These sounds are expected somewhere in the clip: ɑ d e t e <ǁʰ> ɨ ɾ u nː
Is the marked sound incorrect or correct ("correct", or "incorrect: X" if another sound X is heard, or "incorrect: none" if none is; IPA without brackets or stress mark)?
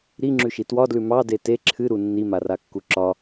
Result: correct